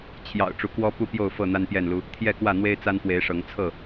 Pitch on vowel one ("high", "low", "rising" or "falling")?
low